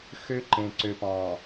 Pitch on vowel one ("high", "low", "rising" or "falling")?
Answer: high